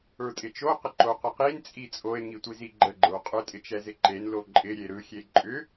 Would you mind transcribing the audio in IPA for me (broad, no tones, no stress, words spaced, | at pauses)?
ə˞tʼɪt͡ʃo qəǃoqəqin t͡sʼit͡sʼoe̯ ŋitʷiziɡ͡ǃə ɡ͡ǃə˞qʼʏ tʼɪt͡ʃɛzɪǃen loǃʼɪ ɾʲeɾɯ xʲeǃʼʏ